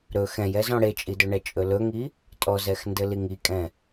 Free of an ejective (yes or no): no